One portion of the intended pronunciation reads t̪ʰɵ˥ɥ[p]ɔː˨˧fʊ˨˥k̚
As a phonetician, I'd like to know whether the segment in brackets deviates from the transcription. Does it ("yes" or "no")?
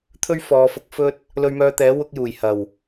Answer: yes